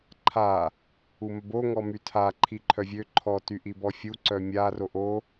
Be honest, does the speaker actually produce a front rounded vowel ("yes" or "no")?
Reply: yes